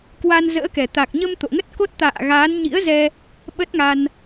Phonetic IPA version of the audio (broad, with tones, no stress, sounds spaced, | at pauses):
k w a˧ n z ə̰ː˧˥ k ɛ˨˩ t̪ a˨˩ k̚ ɲ ə˧ m t̪ o̰˧˨ ŋ ə˦˥ t̚ k o˦˥ t̚ t̪ a̰ː˧˨ ɣ aː˨˦ n ɲ ḭ˧˥ ə̯ z ɛ˧ | ɓ ə˦˥ t̚ ŋ a˧ n